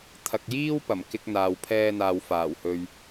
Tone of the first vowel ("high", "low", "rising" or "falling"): low